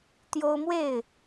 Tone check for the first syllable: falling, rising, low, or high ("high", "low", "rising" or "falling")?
high